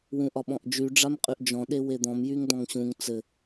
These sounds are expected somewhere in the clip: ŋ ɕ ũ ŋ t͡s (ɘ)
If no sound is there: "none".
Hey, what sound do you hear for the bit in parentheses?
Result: ɘ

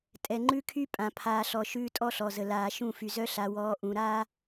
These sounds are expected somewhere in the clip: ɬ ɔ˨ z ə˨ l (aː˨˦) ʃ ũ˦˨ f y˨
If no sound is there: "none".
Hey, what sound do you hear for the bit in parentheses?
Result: aː˨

